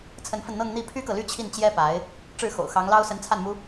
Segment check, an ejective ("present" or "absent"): absent